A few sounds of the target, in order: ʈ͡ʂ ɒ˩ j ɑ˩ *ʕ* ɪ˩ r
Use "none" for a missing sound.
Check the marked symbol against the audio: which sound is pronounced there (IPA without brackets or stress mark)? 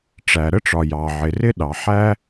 ʕ